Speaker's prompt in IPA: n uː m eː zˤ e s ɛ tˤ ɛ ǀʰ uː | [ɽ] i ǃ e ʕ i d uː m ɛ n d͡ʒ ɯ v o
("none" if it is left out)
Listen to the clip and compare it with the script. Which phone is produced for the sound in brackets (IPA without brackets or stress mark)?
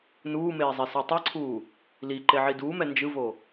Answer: l